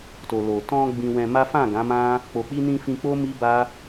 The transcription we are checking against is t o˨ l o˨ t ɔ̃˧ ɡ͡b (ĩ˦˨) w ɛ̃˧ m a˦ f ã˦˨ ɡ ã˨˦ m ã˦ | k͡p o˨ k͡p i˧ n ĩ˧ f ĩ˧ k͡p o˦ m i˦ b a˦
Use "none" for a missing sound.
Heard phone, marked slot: ĩ˧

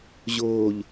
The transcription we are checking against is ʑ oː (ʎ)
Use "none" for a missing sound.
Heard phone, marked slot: ʎ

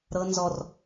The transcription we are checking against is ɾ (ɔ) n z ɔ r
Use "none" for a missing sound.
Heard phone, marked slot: ɤ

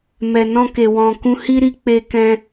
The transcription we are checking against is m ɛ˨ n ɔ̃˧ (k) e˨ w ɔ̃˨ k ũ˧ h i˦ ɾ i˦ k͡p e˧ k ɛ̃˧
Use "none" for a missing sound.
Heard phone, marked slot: k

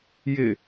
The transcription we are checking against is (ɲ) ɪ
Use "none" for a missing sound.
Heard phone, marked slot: j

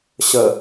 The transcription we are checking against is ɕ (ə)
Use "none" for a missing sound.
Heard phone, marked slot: ə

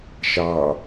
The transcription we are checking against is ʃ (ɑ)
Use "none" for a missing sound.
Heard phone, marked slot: ɑ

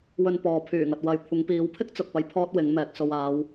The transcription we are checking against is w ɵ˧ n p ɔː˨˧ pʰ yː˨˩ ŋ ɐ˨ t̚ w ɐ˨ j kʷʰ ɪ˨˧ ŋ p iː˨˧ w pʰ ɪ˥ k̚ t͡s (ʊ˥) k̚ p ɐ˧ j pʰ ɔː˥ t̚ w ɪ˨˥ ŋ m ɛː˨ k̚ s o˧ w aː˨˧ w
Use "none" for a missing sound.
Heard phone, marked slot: ʊ˨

